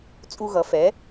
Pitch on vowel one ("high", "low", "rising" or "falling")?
high